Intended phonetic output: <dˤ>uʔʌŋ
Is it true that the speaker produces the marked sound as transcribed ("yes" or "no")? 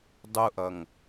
yes